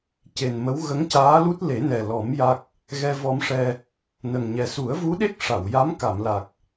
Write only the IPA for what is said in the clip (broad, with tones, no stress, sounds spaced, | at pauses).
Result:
c e˨˩ n m ə˧˥ w ɣ ə˧˥ ŋ c aː˧˥ l u˦˥ t̚ l e˨˩˦ n ɛ˨˩ l ɔ˨˩˦ m j a˦˥ k̚ | ɣ ɛ˧ v ɔ˧ m ʂ ɛ˧ | n ə˨˩ ŋ ɲ ɛ˨˩ s u˨˩˦ ə̯ v u˧˥ ɗ e˦˥ k̚ ʂ a˨˩˨ w j a˧˥ m k a˨˩˨ m l a˨˩ k̚